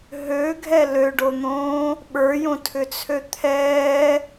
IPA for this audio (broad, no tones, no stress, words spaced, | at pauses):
ɦøɡʱɛ løɖon̪õː | ɓə˞jõtʰʏt͡sʰø t̪ʰɛː